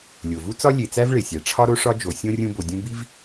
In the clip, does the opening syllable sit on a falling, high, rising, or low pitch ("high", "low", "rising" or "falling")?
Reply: low